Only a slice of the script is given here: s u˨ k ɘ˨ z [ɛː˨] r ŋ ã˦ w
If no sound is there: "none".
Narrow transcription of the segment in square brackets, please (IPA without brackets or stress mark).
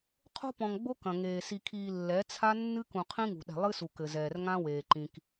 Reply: ɛː˨